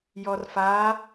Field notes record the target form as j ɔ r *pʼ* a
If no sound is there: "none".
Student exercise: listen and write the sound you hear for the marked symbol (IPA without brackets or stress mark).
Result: f